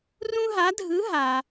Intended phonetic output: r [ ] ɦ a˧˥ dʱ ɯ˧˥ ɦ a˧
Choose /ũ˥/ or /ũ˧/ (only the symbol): ũ˥